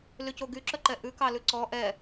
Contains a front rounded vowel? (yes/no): yes